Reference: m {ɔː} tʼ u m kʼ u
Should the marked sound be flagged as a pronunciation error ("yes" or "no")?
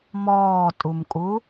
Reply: no